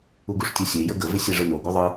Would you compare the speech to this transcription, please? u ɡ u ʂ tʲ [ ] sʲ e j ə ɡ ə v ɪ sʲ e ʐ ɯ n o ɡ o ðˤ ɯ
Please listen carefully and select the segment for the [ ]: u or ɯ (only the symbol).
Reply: u